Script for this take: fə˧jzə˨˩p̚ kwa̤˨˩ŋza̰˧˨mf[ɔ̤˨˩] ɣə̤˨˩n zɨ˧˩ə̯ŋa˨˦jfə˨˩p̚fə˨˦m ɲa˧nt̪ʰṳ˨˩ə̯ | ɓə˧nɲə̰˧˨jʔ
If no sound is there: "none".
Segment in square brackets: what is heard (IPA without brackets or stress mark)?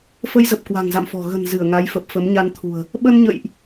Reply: ɔ̤˨˩